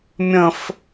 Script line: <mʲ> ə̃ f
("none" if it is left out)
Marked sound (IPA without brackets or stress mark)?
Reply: mʲ